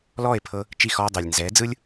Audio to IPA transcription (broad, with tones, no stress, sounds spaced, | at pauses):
l ɔː˦˨ e̯ pʰ ɤ˧ | t͡ʃ i˦˨ x ɔː˧ dˤ ɛ˨ lʲ n z ɛː˨˦ d͡z ɯ˦ lʲ